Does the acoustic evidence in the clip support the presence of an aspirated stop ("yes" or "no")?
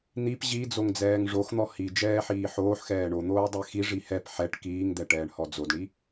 no